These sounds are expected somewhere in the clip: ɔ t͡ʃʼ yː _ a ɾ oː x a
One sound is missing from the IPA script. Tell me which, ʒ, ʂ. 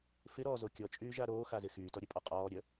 ʒ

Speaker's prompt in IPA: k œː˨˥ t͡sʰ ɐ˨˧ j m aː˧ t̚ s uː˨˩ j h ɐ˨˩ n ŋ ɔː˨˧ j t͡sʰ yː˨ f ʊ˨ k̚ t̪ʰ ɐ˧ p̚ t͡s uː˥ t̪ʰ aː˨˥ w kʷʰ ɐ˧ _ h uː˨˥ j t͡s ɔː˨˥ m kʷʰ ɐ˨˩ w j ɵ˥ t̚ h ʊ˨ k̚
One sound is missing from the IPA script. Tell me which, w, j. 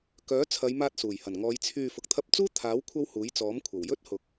w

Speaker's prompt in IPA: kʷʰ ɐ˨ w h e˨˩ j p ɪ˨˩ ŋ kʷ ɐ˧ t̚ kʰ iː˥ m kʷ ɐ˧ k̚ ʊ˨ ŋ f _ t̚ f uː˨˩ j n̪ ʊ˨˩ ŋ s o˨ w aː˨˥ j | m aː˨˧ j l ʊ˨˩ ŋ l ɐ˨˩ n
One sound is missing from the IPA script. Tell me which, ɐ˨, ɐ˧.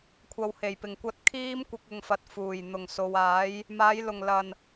ɐ˨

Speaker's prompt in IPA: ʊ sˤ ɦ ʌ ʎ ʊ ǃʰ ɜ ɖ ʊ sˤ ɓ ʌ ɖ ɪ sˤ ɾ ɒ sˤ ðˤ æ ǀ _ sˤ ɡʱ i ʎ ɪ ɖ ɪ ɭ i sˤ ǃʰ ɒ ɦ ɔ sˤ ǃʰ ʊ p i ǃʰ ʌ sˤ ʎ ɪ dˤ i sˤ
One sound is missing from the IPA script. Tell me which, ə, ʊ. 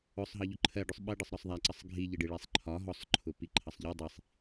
ə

